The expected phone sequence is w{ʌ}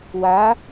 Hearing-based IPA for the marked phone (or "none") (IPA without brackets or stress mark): a